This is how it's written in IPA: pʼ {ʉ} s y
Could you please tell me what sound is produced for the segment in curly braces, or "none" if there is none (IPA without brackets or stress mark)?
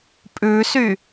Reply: ʉ